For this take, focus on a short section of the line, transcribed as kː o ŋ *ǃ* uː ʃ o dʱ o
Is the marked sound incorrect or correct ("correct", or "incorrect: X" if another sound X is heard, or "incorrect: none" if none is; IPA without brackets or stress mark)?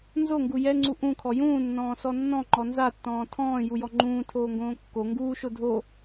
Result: incorrect: ɡ